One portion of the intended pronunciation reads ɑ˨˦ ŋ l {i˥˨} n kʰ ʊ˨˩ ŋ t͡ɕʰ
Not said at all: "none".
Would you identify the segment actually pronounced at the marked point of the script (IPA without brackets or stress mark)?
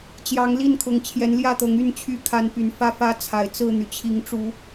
i˥˨